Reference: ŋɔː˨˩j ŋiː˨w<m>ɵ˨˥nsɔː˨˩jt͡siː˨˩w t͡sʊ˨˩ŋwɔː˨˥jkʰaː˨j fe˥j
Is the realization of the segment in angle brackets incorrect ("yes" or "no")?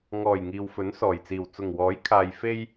yes